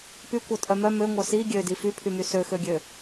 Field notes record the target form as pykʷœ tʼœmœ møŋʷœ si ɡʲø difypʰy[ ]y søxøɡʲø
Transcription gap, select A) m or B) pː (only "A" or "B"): A